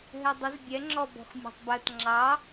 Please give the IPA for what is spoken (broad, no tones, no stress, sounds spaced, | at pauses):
ɦ ɛ dˤ ə z bʲ ɛ ŋ͡ǁ ɔ b ɔ̤ x mʲ ɔ̤ tˤ b ɜ t ŋ͡ǁ ɑ